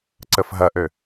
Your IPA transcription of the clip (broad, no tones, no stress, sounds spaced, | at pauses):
ǀ ə f ɦ ɐ ʔ ø